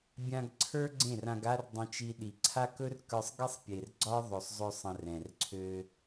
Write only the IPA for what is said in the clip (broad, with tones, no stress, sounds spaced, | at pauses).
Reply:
bʲ ã˧ ɡ ǀʰ ə˞˦ ɡ͡ǀ ẽ˦˨ r ã˧ ɡ a˦ r dˤ ə̃˧ t͡ʃ i˧ ɗ i˨ ǀʰ a˦ k ɵ˦ r k ə˞˧ sˤ ɡ e˦ sˤ pʲ e˨ r ɡ͡ǀ ɒ˦ ðˤ ɵ˨ sˤ zˤ ø˧ sˤ ə̃˧ r ɛ̃˨ r ǀʰ ø˧